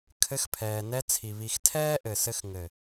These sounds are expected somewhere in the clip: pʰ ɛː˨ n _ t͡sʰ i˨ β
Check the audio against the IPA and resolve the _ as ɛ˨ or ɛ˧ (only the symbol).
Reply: ɛ˧